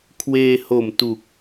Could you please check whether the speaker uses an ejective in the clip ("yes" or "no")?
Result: no